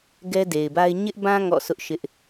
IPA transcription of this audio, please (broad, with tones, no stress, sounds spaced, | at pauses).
ɡ ɛ˦ d e˨ ɪ̯ b a˦ ɪ̯ ɲ ɪ˦ ʔ b ã˦ ŋ ɔ̰˦˨ s ʊ˦ ʔ ʃ ɪ˦ ʔ